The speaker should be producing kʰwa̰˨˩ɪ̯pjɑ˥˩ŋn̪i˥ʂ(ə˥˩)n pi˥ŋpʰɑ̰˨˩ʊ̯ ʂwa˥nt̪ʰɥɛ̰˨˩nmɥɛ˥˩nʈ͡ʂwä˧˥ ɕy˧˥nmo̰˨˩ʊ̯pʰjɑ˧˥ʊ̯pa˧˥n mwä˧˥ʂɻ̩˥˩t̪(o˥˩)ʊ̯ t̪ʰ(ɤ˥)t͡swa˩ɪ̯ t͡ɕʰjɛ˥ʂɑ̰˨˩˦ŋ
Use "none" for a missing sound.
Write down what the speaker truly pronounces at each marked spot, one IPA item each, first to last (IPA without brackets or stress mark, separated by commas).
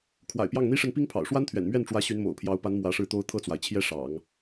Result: ə˥˩, o˥, ɤ˥˩